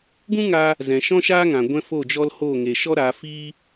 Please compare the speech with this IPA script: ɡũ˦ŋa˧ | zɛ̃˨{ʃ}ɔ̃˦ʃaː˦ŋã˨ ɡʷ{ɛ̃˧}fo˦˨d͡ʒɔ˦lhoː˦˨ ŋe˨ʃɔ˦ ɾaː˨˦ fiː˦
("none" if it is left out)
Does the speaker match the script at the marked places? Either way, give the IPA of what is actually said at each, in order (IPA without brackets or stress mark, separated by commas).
ʃ, ɛ̃˦